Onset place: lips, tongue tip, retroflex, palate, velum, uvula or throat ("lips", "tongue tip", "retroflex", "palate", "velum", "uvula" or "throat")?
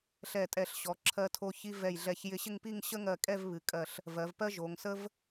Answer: tongue tip